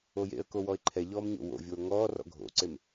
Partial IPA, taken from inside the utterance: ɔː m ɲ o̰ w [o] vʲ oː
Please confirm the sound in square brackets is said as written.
no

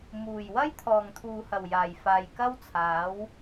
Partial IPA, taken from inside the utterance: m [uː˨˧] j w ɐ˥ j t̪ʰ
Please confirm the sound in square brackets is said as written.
no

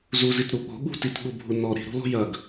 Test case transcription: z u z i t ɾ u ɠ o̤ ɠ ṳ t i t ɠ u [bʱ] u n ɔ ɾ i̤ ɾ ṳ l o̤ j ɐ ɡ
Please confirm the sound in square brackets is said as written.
yes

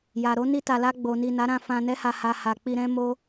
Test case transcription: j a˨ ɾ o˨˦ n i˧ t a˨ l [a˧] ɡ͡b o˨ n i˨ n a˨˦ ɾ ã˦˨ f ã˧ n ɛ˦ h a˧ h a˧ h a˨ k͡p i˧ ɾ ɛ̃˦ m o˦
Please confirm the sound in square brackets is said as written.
yes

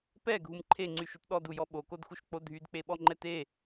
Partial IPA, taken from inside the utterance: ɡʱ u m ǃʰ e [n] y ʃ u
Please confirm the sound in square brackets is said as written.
no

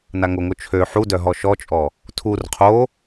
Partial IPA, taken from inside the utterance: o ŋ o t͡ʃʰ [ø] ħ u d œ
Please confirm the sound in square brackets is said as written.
yes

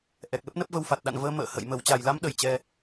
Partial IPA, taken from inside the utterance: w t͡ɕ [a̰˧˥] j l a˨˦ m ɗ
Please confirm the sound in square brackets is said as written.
no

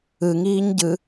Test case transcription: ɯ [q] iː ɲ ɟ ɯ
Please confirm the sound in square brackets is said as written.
no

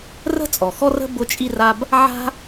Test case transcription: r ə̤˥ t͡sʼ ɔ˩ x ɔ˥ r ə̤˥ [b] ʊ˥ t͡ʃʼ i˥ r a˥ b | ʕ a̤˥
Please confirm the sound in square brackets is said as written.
yes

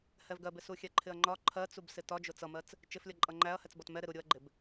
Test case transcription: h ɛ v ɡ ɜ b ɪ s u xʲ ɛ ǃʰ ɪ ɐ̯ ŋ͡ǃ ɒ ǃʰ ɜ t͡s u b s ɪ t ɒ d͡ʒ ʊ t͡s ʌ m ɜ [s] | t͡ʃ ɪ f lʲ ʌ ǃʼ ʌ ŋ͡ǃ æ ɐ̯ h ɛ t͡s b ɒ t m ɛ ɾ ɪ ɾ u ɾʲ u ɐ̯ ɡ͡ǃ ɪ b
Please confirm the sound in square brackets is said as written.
no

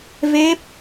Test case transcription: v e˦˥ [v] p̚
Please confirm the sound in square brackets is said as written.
no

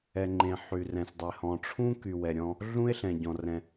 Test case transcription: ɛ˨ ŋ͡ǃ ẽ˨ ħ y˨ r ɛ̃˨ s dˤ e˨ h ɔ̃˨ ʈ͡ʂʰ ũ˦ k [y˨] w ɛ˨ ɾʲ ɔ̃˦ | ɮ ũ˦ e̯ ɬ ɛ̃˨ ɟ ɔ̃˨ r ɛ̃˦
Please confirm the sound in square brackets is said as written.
yes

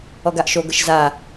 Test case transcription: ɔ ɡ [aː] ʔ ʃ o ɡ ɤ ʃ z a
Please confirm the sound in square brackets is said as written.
no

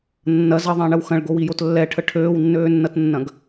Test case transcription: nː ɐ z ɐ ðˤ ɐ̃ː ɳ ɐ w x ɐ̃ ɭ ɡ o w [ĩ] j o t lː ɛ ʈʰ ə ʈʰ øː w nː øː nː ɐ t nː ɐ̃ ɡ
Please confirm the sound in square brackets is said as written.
no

